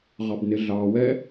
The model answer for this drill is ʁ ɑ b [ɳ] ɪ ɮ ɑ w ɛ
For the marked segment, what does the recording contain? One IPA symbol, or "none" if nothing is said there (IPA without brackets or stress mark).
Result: n